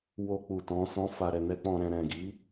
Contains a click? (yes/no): no